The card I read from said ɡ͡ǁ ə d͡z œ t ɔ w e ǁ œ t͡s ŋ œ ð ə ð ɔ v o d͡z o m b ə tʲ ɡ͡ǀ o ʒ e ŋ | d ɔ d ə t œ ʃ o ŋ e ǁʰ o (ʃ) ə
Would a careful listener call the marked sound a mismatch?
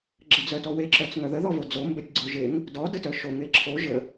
yes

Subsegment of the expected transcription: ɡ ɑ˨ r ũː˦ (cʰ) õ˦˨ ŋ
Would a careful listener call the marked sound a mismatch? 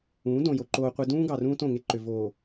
yes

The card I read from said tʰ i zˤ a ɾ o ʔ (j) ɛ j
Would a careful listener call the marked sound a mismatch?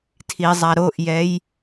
no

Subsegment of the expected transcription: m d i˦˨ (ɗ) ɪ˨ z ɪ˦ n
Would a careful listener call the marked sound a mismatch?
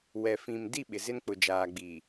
yes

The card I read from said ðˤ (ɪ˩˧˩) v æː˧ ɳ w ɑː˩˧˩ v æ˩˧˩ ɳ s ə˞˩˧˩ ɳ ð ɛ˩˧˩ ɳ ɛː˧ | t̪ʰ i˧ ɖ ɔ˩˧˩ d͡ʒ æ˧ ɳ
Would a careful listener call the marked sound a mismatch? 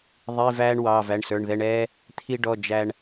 yes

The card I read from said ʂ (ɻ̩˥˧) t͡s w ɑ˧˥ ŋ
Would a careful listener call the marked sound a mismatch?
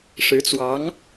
yes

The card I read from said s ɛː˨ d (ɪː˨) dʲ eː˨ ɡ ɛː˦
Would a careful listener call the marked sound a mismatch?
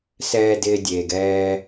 no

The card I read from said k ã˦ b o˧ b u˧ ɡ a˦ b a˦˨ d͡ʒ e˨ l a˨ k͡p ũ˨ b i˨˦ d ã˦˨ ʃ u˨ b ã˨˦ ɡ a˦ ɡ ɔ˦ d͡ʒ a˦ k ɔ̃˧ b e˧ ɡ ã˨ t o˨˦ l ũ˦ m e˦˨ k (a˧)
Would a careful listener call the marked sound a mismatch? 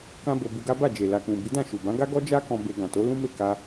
no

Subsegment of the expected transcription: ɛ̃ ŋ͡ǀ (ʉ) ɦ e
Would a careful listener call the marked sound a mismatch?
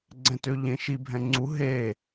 yes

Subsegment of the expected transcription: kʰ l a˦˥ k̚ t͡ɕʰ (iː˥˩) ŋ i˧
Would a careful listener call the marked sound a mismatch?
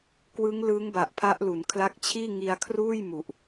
no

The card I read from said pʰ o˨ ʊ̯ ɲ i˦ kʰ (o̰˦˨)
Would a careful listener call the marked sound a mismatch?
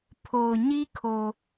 yes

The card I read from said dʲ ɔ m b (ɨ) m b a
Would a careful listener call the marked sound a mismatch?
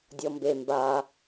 yes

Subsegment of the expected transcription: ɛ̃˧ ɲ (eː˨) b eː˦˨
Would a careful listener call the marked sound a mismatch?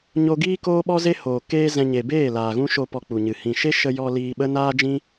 yes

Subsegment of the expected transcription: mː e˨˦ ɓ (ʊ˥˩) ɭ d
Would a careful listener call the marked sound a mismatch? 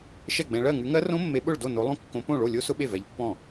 no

